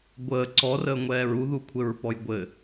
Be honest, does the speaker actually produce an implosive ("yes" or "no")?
no